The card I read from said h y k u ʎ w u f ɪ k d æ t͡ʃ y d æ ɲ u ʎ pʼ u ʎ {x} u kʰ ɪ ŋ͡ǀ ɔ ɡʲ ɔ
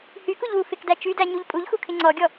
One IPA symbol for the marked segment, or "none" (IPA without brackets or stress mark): x